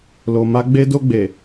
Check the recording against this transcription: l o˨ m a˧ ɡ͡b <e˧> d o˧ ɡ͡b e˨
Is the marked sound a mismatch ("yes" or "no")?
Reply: no